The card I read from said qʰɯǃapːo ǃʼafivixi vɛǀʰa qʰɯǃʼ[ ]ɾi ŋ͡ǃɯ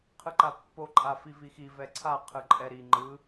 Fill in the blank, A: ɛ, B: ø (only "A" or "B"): A